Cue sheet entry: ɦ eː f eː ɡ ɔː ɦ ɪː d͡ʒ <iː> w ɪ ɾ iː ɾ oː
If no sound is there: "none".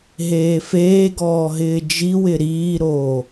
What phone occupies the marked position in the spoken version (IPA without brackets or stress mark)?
i